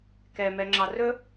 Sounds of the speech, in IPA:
kɛmɛŋ͡ǁɑ rɵ

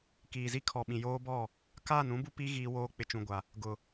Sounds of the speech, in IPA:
kiː˨zi˦kʰɔ˨ɓĩ˨ joː˦bɔ˦˨ | kaː˦˨nũ˦bu˦ pi˦ ɣiː˦ woː˦ k͡pɪ˨t͡ʃũ˨ɡʷa˨ | ɡʊ˨

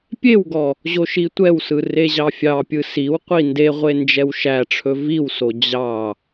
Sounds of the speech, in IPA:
pʲewɡɔ | ʑoʃitʷɛwsɯ reʑɑfʲɑpʲɯ siwqʷi ndeʁʷe nd͡ʒɛwʃæʈ͡ʂʰɵ viwso d͡ʑɑ

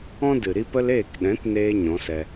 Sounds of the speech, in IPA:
ɔ̃˦ dɨ˨ɾi˦pə˦l eː˦˨kɗɛ̃˨˦tneː˧ ɲɔ̃˨˦sɛ˧

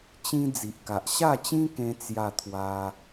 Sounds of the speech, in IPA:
t͡ɕĩ˦ d͡zi˨ʔka˨ʔ ɕa˥˧t͡ɕĩ˦kẽ˧ t͡sja˥˧t̪ʰwa˦

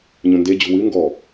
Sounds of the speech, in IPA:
ɲũnde d͡ʑṳwɨ ŋɡɔ

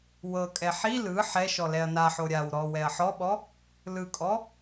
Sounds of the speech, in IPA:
wɤkʼɛ ħi lɯ ħɛʃɔ lɛɐ̯naħo ɾʲaw ɾɔ wɛɐ̯ħɔɓɔ | lɯkʼɔ

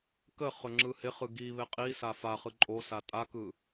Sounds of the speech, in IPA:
kəχɵ ŋ͡ǁɯhɪχɯ ɡi βɪqʼisa faχɯ ǃʼosa tʼakɯ

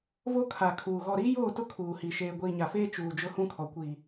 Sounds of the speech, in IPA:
vo˦kʰa˨ kʰuː˨ ɣɔ˨ɾiː˦joː˦˨tʊ˦ kʰuː˨hi˨ ʃeː˨ɡʷiː˨ɲa˨feː˦ t͡ʃuː˨ d͡ʒʊ˦hũ˦kʰɔ˨ kʷiː˨

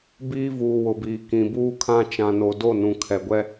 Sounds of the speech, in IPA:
biː˦ vuː˨ wʊ˨biː˨ kĩ˨buː˦kʰã˦ t͡ʃã˨no˨ do˦˨ nũ˨kʰɛ˨ɡʷɛ˦

